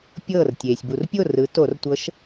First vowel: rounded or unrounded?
unrounded